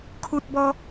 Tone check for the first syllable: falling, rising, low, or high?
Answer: high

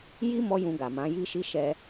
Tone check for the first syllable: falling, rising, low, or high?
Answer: high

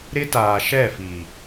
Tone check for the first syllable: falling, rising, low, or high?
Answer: high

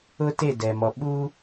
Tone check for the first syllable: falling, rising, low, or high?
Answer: high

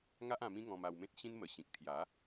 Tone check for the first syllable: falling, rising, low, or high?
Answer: high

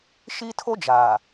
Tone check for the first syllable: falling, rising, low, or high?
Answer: high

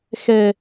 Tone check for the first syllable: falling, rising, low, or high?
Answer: low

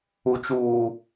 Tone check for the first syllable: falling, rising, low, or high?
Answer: low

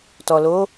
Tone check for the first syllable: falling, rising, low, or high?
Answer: low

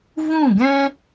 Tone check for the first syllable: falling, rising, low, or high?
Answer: falling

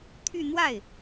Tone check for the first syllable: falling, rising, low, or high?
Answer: falling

